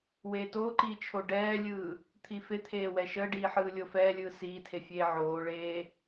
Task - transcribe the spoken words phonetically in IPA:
w eː t oː ǃ iː t͡ʃʰ o ɖ ɛː lʲ ɯː | t̪ʰ i f e t̪ʰ eː w ɛ ʃ əː ɖ iː ħ ɯː lʲ o f ɛː lʲ ɯː s iː tʰ e fʲ eː ʕ oː ɭ eː

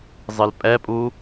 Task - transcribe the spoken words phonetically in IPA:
zˤ ɨ l pʼ ɛ pʼ u

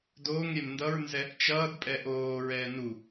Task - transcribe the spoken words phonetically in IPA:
d oː ŋ ɾʲ ɛ m n d ʌ ɹ n z ɛ | t͡ʃ ʌː d pʼ ɛ ʔ oː ɹ ɛː n u

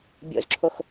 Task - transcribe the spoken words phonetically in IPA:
bʲ o̰ z ǁʰ o x

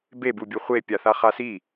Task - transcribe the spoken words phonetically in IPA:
b e b u bʲ ɯ χʷ e pʲ a θ a χ a s i

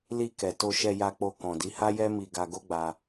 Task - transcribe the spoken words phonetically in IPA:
l i˧ k ɛ˨ t o˧ ʃ ɛ˧ j a˧ k͡p o˧ k ɔ̃˨ d i˨˦ h a˦ j ɛ˦ m i˧ ɡ a˧ ɡ o˦ ɡ͡b a˧

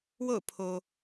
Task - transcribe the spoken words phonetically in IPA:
w o̰˦˨ ʊ̯ pʰ o˨

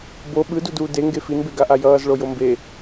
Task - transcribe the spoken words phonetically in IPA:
b o ɓ ɯ d u d uː d e ŋ ɡ e f i n b e ɡ a ʔ a j ʌː z ɭ o j o m b e

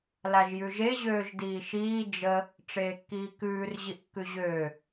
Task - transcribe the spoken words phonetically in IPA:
l a ʒ j ʉ ʒ e ʑ øː ʒ d iː ʃ iː d͡ʒ ə | ʈ͡ʂ eː kː iː k ʉː r ʑ i ʔ kː ʉ ʑ øː

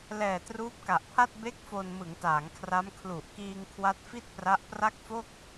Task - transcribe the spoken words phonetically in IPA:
l ɛː˨˩ t r uː˦˥ p̚ k a˨˩ ʔ pʰ a˥˩ t̚ b e˥˩ k̚ f o˧ n m ɯ˩˦ ŋ t aː˩˦ ŋ kʰ r a˦˥ m kʰ l u˨˩ ʔ k iː˧ ŋ kʰ w a˦˥ t̚ f i˥˩ t̚ p r a˦˥ ʔ p r a˥˩ k̚ f o˥˩ k̚

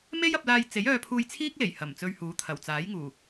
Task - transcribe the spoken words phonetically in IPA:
m e˥ j ɐ˧ p̚ l aː˧ j t͡s e˨˥ j œː˧ pʰ uː˧ j t͡sʰ iː˥ k̚ l e˨˩ j h ɐ˨˩ m t͡s ɵ˧ ɥ h uː˨˥ t̪ʰ ɐ˨˩ w t͡s aː˨˥ j ŋ uː˨˩

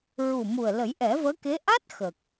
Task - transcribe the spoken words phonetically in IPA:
ɹ u˨˩ m u˨˩ ə̯ l ə˨˩˦ j ʔ ɛ˨˩˦ v əː˧˥ k e˧˥ ʔ a˦˥ t̚ x ə˨˩ k̚

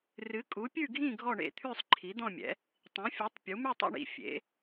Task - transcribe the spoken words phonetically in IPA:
r ɨ˨˥ kʼ u˨˥ pʲ ʉ˥˧ ɡʱ ĩ˥˧ ɡʱ ɔ˥˧ ɳ ḛ˥˧ t̪ʰ ʉ˥˧ sˤ ǃʰ i˨˥ d̪ ɔ̃˥˧ mʲ ɛ̰˨˥ | tˤ ĩ˨˥ fʲ u˨˥ tˤ pʲ u˨˥ m ʉ˥˧ tˤ a̰˥˧ ɳ ḭ˨˥ fʲ ḛ˨˥

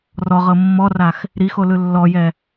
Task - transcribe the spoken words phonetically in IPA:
r ɔ ʁ ɤ mː ɔ r a x | ɾ i x o l ɯ lː ɔ j ɛ

